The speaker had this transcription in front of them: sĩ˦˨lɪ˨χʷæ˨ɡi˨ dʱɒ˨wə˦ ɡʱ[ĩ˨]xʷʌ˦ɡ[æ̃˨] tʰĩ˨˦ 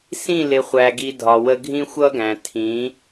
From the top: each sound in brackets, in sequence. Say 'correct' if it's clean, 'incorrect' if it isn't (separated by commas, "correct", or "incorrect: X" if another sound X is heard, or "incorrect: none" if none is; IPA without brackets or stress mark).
incorrect: ĩ˦, correct